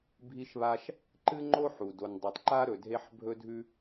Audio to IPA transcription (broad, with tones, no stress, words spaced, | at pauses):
bʱi˥ʃβa˥ʃ | ǃɨ˥ŋ͡ǃo˥ ħu˩ do˩ndˤu˩tˤǃa˥ɾɵ˩ dʱe˥ħ bʱɵ˥dʱʉ˥